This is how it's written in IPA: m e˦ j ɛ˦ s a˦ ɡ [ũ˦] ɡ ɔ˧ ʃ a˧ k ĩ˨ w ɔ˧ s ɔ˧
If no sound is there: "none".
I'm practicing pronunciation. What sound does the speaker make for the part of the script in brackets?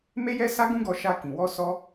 ũ˦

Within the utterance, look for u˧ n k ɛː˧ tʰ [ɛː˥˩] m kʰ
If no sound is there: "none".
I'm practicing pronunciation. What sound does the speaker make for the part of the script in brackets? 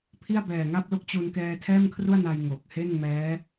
ɛː˥˩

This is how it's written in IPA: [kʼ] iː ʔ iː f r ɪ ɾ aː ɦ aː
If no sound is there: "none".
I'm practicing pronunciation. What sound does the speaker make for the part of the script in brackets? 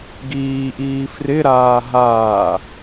ɡ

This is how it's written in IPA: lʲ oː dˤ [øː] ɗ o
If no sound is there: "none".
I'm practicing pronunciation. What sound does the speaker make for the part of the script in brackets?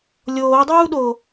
uː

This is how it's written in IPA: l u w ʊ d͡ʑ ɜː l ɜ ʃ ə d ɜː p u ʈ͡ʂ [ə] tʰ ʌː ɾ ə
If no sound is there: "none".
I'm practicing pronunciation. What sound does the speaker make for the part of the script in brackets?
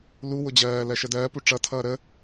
ʌ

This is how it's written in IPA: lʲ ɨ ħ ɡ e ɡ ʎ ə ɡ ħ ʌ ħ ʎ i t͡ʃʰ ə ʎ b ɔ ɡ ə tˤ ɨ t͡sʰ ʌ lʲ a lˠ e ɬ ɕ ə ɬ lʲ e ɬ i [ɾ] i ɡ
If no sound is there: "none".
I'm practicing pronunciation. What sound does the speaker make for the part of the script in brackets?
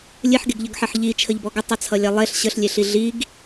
ɮ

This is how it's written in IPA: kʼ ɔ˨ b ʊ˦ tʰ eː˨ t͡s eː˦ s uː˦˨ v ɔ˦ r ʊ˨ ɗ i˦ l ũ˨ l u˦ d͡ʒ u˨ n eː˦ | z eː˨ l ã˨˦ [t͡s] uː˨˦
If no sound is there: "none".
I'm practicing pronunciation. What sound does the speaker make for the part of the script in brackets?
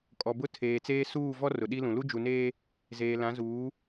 z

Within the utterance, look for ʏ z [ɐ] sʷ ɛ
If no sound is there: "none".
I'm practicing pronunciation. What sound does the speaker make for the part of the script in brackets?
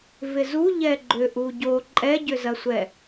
ɐ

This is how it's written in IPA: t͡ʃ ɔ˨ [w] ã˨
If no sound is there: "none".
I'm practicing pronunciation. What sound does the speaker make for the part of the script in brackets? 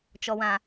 w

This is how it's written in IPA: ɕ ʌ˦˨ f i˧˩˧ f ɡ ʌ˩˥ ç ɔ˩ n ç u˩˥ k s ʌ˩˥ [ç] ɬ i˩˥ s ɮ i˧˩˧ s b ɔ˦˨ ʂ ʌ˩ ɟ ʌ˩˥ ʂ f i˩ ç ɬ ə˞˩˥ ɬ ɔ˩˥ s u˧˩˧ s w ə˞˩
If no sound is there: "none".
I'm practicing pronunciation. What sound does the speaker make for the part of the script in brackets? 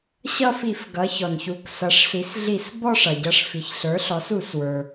ʂ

